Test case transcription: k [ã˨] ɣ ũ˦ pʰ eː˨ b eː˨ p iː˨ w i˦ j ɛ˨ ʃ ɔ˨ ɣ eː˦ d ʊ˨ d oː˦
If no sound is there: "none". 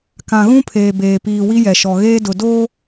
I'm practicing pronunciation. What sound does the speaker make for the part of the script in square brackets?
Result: ã˨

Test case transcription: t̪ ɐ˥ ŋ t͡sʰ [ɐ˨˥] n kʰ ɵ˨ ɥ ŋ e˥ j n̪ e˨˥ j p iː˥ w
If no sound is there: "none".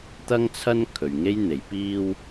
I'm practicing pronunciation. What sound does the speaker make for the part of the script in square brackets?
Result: ɐ˥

